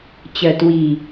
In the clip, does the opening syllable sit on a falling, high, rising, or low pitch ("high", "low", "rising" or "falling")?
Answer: low